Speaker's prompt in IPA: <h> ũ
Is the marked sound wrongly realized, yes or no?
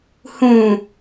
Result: no